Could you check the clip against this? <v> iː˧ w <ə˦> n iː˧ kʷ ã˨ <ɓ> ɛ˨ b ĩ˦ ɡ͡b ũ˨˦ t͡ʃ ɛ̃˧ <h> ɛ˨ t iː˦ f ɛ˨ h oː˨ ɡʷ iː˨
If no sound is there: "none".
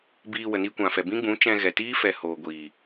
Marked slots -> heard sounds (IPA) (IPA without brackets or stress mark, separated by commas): b, ə˨, f, ɣ